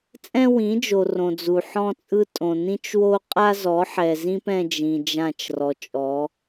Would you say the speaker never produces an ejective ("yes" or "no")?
no